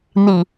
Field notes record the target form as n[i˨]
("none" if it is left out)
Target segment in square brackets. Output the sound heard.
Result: i˨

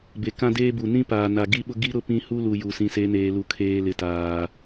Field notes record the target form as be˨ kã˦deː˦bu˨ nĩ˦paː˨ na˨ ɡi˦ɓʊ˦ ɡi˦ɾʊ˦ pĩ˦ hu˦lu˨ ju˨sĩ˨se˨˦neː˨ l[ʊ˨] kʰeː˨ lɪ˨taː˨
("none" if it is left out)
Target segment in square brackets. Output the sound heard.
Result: u˨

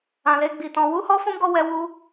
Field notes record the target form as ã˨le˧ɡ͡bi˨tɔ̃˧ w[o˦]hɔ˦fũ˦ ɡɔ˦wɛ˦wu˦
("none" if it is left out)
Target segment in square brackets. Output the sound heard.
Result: u˦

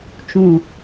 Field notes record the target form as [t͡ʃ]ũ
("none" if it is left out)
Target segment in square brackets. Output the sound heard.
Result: t͡ʃ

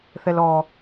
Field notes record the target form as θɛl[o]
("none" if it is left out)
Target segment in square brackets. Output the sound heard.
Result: ɔ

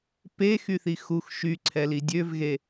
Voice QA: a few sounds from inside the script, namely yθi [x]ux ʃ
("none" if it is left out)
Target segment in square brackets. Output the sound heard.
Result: x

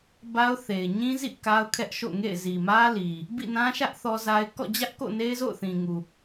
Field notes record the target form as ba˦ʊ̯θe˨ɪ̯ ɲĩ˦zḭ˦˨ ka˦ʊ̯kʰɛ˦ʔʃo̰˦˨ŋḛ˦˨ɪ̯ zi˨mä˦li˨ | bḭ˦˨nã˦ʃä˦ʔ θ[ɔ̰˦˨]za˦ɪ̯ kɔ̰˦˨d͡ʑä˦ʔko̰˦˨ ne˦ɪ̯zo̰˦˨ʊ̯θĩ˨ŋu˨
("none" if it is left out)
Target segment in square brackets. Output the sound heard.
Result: ɔ˦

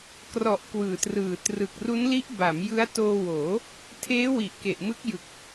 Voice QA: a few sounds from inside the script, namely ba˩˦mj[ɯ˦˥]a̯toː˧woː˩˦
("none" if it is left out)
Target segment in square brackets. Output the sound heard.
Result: ɯ˦˥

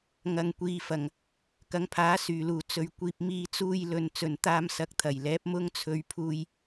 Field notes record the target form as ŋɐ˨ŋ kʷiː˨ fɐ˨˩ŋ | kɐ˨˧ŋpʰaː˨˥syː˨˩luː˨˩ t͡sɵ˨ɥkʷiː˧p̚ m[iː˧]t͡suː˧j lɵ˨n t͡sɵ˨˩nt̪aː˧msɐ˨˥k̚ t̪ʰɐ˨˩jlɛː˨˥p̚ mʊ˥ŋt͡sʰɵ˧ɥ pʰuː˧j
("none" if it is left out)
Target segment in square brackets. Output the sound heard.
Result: iː˧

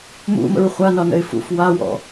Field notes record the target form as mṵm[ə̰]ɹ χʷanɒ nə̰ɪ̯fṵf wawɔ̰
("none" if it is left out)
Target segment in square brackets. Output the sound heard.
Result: ə̰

